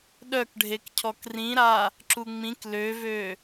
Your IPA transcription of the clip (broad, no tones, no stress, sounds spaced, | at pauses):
ɗ œ k ɖʱ e k cʰ ɔ k r ĩ ɾ a | ǁ u ŋ͡m ĩ k l ø v ø